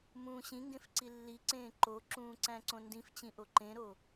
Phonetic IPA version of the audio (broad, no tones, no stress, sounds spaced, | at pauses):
m ũː ɕ ĩ ŋ ɡ ẽ f ǀ i lː i ǀ ẽː ǃ o ǁ ũː ǀ æ̃ ǀ õ n d ĩ f t͡ɕ ĩ ʔ o ǃ ẽ ɾ o